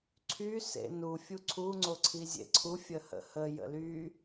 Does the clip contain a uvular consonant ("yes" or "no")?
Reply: no